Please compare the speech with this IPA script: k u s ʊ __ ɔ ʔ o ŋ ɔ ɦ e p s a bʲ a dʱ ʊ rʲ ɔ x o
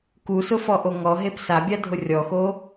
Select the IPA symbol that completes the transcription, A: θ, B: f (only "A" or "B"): B